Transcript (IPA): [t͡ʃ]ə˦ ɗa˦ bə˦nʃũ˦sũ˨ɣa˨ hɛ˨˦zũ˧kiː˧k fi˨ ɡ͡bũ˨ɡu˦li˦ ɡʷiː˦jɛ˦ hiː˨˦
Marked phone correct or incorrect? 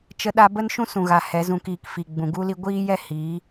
correct